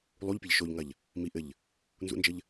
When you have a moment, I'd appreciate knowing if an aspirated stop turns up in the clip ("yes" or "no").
no